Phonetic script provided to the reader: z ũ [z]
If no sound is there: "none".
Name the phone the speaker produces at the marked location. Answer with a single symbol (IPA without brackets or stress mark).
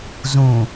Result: none